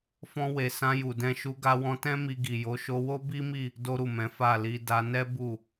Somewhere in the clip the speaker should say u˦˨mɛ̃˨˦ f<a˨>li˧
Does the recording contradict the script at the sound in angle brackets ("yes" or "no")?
yes